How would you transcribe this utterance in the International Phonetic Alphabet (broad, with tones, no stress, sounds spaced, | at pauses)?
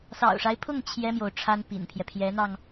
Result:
s ɑ̰˨˩ ʊ̯ ʂ a˦ ɪ̯ pʰ ʊ˥˩ ŋ t͡ɕʰ j ɛ˥ m j o˨ ʊ̯ ʈ͡ʂʰ a˥ n p ḭ˨˩ n pʰ j ɛ˦ pʰ j ɛ˧˥ n̪ ɑ˧ ŋ